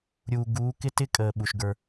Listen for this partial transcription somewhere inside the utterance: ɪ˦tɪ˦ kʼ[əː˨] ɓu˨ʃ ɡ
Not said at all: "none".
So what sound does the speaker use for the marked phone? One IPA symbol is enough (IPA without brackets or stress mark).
əː˨